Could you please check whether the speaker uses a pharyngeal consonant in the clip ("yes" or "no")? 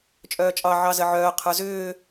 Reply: yes